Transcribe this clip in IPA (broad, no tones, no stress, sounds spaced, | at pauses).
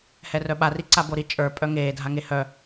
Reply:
h ɛ r œ ɓ a r i ǀ a b o ɾ i t͡ʃʼ ə˞ pʼ œ ŋ eː dʱ a ŋ e h œ